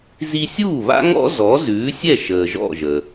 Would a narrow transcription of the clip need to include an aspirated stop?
no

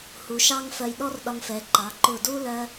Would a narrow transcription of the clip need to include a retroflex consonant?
no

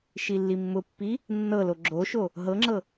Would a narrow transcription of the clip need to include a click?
yes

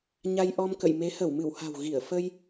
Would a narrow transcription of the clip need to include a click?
no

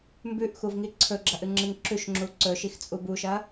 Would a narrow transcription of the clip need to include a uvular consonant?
no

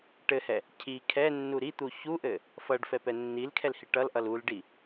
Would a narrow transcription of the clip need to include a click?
no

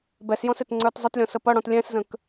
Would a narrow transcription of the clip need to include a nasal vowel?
yes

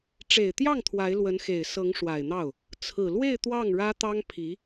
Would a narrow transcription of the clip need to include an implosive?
no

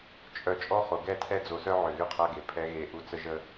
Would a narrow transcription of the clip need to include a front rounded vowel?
yes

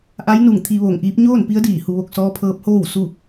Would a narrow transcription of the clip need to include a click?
no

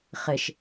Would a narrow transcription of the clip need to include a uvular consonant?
yes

